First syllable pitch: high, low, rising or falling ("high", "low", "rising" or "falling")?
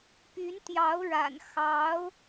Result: rising